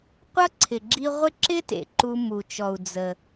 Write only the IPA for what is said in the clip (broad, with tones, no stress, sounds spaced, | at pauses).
qʷ ʌ˥ ǀʰ ɪ˩ ɡ͡ǁ i˧ ʁʷ ɪ˥ ǁ ɪ˥ t ḛ˩ ǃ u˧ m u˩ t͡ʃ ɔ˩ u̯ d͡z ə˩